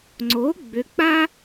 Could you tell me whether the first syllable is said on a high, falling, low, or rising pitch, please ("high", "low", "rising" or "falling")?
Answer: rising